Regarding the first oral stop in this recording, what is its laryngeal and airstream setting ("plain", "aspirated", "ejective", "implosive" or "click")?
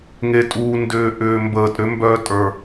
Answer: ejective